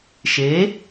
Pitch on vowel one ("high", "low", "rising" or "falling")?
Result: rising